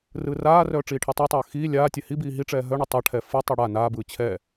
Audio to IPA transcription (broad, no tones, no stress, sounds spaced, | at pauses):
r ɯː r aː r œː ʈ͡ʂ iː ʈʰ i tˤ ɯ tˤ œː x iː lʲ aː tʲ ɛ h i b iː ɦ i ʈ͡ʂ ɛː ɦ œ ɳ ɯ tˤ a ʈʰ ɛ f ɯ tˤ i ɽ a n aː b ɯː t͡ɕʰ ɛ